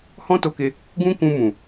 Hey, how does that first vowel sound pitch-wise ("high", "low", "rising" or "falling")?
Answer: high